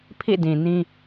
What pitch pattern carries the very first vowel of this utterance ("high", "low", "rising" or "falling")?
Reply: falling